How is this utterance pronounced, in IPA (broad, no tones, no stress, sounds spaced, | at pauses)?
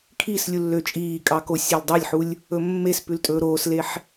kʰ i s lʲ u lː ø t͡ʃʼ iː kʼ ɑ k o sʲ œ l dˤ ɑ lʲ ħ u lʲ | ɵ mː e s p ʉ l tʼ ɵː ɾ oː s l e ħ